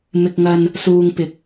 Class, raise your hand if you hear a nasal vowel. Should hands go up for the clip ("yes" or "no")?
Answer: no